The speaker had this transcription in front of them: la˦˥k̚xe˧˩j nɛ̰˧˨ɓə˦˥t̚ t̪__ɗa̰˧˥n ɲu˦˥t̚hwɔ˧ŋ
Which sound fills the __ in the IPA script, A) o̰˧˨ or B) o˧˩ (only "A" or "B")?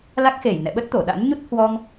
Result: B